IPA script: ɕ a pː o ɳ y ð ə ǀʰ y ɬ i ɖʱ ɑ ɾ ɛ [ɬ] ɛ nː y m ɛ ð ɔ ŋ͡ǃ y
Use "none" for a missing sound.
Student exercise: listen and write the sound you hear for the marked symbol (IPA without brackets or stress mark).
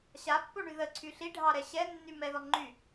ɕ